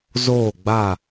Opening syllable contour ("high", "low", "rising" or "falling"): falling